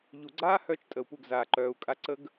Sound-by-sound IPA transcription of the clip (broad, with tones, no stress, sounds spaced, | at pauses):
ʎ u˨ ɡ͡ǀ aː˦ h œ˧ t͡ʃ tʼ ə˨ u̯ p u˦˨ ɡ z aː˨ ǃ œː˨ u̯ kʼ a˧ ǀ ə˦ ɡ